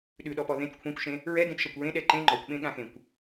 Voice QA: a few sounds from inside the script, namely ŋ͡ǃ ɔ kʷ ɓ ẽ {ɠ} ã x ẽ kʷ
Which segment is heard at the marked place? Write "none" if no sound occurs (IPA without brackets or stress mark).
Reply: ɠ